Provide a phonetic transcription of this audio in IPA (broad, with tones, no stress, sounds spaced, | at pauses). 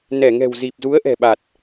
n ɛ˧˩ ŋ ɛ̤˨˩ w z i˨˩ p̚ z u˨˦ ə̯ ʔ ɛ̤˨˩ ɓ a˨˩ t̚